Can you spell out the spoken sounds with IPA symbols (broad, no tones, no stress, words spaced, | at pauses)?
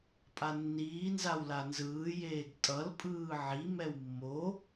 pʼanːiː nzawlanzɯː jeːɡtʼʌl pʼɯːʕi mɛwmːo